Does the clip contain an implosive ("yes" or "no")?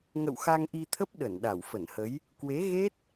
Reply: yes